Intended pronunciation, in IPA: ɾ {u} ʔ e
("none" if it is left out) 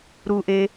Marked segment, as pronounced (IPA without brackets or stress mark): u